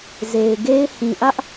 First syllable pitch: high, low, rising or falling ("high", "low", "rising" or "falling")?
low